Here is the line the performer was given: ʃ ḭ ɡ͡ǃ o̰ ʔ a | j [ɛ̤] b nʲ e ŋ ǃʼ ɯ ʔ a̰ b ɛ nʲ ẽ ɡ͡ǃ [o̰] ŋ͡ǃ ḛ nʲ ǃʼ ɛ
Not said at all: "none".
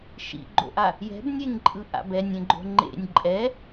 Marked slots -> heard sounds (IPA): ɛ̤, o̤

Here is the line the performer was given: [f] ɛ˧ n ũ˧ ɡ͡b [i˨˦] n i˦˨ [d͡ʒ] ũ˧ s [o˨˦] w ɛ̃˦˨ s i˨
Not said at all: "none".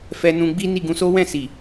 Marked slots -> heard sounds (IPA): f, i˦, ɡ, o˦

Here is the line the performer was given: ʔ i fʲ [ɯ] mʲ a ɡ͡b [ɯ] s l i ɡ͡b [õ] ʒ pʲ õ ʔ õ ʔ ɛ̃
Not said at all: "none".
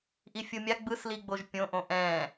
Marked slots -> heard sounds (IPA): ɯ, ɯ, o

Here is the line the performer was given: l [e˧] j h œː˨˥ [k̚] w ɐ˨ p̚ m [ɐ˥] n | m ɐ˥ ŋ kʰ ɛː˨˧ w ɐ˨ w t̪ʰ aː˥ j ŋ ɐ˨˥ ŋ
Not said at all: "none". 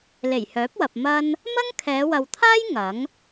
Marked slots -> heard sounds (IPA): e˨˩, p̚, ɐ˥

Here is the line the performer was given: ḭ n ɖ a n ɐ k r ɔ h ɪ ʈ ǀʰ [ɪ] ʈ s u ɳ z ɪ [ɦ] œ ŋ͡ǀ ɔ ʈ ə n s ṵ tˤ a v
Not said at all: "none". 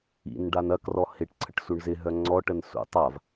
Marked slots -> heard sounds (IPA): ə, ɦ

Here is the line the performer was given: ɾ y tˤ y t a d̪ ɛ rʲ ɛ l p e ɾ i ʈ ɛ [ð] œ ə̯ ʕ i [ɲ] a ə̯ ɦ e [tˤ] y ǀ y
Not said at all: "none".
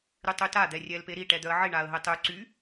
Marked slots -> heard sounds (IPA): d̪, ɳ, tˤ

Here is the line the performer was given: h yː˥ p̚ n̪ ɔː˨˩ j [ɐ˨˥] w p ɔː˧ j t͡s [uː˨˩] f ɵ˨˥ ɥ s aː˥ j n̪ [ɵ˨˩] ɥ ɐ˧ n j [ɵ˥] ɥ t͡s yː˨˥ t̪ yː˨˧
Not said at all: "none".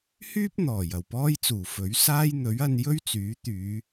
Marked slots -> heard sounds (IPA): ɐ˨˩, uː˨˩, ɵ˨˥, ɵ˥

